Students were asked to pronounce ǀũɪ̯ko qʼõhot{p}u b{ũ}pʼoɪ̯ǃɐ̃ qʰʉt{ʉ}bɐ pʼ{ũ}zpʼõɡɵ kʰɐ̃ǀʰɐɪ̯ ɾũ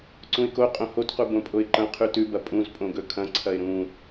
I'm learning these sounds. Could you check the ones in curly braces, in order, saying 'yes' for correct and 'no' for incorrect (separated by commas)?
no, no, yes, yes